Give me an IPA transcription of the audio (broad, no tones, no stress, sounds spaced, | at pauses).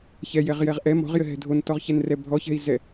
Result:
ç ɛ j ɛ ʁ j ɛ ʁ ʔ ɛ m ɔ̤ ʁ j ɘ ɦ ɛ̤ dʱ o n t ɔ ʁ ç ɛ n r ɛ bʱ ɔ ç ɛ̤ i̯ z ɛ